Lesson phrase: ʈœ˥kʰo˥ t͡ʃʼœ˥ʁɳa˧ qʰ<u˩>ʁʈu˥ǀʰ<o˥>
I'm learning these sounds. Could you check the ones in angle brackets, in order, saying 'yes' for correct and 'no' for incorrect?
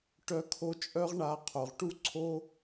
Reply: no, yes

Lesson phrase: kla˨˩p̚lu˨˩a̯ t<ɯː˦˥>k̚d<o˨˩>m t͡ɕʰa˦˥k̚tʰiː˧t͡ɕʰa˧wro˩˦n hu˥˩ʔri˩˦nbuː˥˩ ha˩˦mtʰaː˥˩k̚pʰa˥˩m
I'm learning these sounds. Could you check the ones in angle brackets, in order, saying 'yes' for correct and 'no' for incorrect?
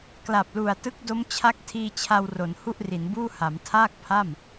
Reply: no, no

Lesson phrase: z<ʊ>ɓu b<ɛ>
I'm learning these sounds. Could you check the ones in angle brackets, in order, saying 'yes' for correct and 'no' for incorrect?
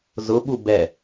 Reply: yes, yes

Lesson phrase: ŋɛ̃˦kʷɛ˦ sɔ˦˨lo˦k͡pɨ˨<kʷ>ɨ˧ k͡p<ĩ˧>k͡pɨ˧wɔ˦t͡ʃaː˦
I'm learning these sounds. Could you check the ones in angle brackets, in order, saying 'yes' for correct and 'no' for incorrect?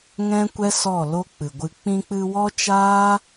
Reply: no, yes

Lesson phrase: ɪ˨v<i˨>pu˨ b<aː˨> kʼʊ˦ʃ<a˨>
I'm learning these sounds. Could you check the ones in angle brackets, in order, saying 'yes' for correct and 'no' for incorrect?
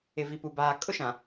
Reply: yes, yes, no

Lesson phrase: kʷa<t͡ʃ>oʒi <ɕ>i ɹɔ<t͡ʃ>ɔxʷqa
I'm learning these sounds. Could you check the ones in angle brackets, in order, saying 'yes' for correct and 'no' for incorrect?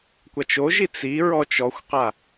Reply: yes, no, yes

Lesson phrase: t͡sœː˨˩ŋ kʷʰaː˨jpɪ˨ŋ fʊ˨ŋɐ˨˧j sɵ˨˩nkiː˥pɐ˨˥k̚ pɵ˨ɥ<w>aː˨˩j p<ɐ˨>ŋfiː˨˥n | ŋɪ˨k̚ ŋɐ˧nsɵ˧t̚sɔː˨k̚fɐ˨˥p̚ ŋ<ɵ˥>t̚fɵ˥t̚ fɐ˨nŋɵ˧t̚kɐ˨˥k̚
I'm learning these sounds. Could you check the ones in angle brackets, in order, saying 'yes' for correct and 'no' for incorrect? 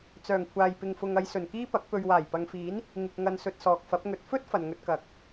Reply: yes, yes, no

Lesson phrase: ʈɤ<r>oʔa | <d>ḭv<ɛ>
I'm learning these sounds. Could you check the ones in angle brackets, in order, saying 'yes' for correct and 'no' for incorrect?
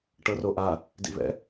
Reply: yes, yes, no

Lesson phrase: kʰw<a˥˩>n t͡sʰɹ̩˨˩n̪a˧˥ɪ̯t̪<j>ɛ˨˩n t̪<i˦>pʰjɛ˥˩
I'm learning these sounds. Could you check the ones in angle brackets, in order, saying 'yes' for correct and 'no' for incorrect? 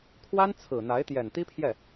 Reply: no, yes, no

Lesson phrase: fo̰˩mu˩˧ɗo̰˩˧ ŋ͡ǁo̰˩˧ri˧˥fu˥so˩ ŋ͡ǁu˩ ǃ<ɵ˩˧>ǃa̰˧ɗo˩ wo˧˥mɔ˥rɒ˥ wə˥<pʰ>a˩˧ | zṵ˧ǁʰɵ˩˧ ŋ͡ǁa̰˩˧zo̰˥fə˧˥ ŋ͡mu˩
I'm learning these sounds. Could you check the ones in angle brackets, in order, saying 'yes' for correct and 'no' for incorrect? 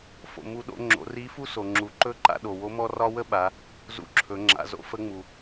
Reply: no, no

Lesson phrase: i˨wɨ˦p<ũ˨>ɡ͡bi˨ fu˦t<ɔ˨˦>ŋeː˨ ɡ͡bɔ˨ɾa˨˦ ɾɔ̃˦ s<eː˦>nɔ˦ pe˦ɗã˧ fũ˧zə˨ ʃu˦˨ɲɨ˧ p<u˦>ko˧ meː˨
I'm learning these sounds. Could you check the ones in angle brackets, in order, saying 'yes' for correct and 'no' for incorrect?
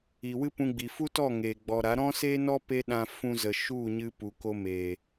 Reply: no, no, yes, no

